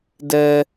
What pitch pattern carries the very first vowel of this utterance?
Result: high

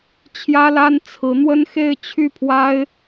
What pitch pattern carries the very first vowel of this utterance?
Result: high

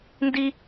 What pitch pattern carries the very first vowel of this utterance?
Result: high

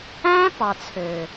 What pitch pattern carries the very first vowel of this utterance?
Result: high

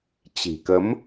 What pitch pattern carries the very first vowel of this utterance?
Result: low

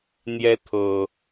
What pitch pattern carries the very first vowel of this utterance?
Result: high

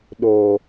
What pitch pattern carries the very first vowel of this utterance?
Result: low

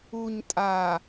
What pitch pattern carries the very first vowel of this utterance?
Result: low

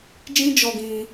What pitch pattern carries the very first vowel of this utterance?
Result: high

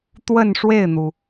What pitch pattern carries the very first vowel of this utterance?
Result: falling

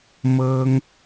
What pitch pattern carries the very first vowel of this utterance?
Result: high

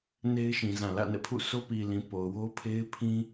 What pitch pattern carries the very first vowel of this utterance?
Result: high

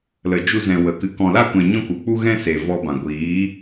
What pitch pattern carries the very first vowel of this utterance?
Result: low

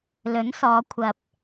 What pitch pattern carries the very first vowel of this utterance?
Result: rising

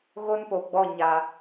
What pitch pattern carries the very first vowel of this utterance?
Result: high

